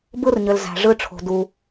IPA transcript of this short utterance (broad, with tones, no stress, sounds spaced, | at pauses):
b ɯ˥ r ɲ ø˩ l z æ̤˩ ʐ ɯ˧ ʈ͡ʂʰ o̤˩ d u˩